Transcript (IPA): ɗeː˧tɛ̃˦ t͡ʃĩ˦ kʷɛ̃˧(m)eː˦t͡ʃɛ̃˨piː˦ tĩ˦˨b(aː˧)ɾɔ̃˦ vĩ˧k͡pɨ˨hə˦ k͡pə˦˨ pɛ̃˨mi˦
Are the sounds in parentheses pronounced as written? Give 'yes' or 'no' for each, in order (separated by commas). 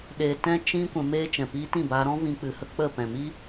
yes, yes